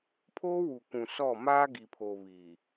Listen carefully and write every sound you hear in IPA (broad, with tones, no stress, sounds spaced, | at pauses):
pʰ oː˦ w u˨ k ũ˨ s ɔ˦˨ m aː˦ ɡ i˨ pʰ o˨ β i˨